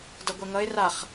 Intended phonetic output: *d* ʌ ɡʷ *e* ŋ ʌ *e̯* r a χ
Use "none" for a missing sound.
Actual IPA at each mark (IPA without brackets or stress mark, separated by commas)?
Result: d, ɛ, e̯